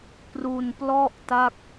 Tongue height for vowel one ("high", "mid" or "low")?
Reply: high